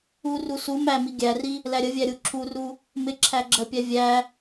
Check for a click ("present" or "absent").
present